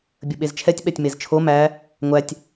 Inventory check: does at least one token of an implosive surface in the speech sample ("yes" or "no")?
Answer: yes